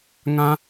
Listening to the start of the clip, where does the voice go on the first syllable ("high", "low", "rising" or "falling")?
high